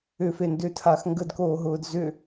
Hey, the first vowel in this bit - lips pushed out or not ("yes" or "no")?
yes